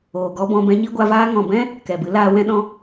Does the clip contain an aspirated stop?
no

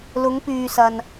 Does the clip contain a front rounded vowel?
yes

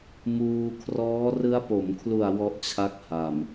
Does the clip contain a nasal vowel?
no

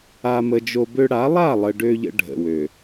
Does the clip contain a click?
no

